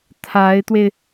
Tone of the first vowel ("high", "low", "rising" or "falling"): rising